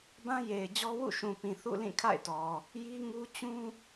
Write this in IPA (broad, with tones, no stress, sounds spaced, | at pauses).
b ã˦ j e˨ ɪ̯ d͡ʑ ɔ˦ w ṵ˦˨ ʃ ũ˨ p ĩ˨ θ ṵ˦˨ l ĩ˦˨ kʰ a̰˦˨ ɪ̯ t ɔ˨ | j i˦ ŋ u˦ t͡ɕ ũ˦